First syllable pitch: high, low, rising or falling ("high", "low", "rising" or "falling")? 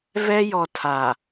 high